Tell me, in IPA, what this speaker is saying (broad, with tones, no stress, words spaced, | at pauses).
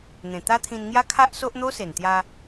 n̪ẽ˨˩t̪a˦t̪ʰĩ˧nŋja˦ kʰa˦ʔ so˦ʔn̪o˦se˨˩n t̪ja˧